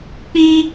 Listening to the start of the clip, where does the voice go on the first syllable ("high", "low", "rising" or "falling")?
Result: high